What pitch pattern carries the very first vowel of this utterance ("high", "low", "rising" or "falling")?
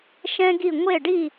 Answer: high